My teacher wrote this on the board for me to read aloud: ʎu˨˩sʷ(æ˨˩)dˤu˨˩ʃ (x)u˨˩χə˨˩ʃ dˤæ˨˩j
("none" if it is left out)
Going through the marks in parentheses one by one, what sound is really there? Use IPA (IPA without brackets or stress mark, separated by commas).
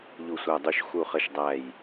æ˨˩, x